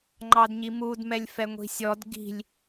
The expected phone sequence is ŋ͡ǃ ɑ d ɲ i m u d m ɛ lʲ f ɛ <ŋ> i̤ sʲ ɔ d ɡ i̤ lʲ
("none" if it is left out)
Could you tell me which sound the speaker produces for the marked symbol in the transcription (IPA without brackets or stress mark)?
ŋʷ